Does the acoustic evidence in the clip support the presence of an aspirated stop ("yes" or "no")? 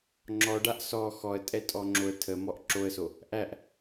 yes